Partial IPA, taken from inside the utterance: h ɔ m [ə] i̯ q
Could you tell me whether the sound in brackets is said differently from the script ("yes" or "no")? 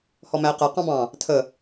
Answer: yes